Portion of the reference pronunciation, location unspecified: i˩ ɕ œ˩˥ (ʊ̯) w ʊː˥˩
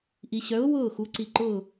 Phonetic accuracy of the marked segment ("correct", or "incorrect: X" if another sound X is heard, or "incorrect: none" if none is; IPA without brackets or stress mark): correct